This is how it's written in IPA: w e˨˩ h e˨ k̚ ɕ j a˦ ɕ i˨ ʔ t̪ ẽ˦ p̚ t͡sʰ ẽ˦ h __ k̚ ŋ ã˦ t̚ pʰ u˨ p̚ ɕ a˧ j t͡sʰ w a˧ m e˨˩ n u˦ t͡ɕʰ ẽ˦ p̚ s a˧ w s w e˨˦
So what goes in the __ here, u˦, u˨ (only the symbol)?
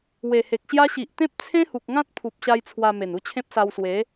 u˨